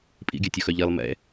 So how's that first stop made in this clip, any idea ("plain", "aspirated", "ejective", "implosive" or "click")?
ejective